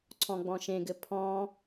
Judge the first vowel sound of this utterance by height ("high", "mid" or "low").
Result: mid